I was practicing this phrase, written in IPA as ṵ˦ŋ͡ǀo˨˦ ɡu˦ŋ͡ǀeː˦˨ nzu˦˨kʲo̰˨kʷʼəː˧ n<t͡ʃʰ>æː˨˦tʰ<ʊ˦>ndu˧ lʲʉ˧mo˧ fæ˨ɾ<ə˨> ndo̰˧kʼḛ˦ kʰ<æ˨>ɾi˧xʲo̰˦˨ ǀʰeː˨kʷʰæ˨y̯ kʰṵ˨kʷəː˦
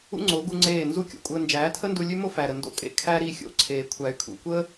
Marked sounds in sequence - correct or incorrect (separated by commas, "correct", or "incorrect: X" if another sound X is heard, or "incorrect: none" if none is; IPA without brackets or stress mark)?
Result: incorrect: d͡ʒ, incorrect: ə˦, correct, incorrect: æ˦